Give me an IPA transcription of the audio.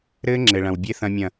ɾ ɘː˦ ŋ͡ǁ ɘ˨ ɭ ɐ̃˨ w bʲ e˦ θ ɐ̃˦ mʲ ɐ̃˦˨

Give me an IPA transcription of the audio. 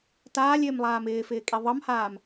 t aː lʲ ɪː m lˠ aː m ɪː f ɪː kʼ i ðˤ ʌ m h aː m

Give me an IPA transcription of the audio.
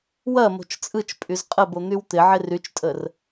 w ɐ m o̤ t͡ʃ t͡sʼ ɯ t͡ʃ pʼ y z qʼ ə b o n̪ y w t̪ ɪ ʕ ɪ r y t͡ʃ tʼ ə r

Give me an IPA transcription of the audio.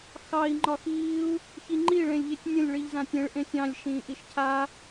x ɑ i̯ ŋ͡ǃ ɒ x iː u̯ | ç i ŋ͡ǃ i ɭ ẽ lʲ ʎ e tʲ nʲ ə̃ lʲ ɭ i ʎ z ã tʲ ẽ ɭ ʔ ẽ sʲ ɑ̃ lʲ ʃ ĩː ʔ i ʃ cʰ a

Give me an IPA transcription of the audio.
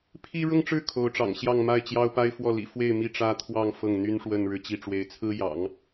pʰ i˥ ɻ ʊ˥˧ ŋ ʈ͡ʂ ɻ̩˥˩ kʰ o˧˥ ʊ̯ ʈ͡ʂ ɑ̰˨˩ ŋ ɕ j ɑ˥˧ ŋ m a˥˩ ɪ̯ t͡ɕ j ɑ˥ ʊ̯ p a˥ ɪ̯ f w ɔ˥˩ l ḭ˨˩ f w e˥˧ ɪ̯ m i˥˩ ʈ͡ʂ ä˥ t̪ʰ w ɑ˥˧ ŋ f ɤ˥˩ ŋ n̪ y˥ n ʂ w ə˥˧ n ɻ ɻ̩˥˧ t͡ɕ i˥˩ ʈ͡ʂ w e˧˥ ɪ̯ t͡sʰ ɹ̩˥ j ɑ̰˨˩˦ ŋ

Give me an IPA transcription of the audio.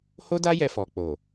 h o˦ d a˦ j ɛ˧ f ɔ˨ k͡p o˨

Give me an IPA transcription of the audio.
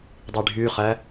dˤ i ɖʱ y χ æ

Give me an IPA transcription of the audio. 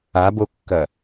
a b o kː ɐ

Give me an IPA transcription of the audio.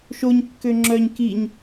ʃ o ɲ kː ø ŋ͡ǁ œ ɲ k i ɲ

